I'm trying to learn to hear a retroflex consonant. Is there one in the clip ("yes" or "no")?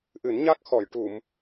yes